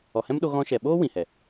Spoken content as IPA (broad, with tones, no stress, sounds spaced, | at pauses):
ɔ˨ h ɛ̃˦ m ɗ o˧ ɣ ɔ̃˧ ʃ ɛ˨ ɓ oː˦ w ĩ˨ h ɛ˨